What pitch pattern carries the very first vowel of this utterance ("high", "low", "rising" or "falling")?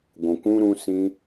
low